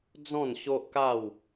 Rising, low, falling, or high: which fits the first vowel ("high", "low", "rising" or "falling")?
falling